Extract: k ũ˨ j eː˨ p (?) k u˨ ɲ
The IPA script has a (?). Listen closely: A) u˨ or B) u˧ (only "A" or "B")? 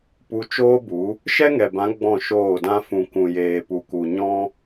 A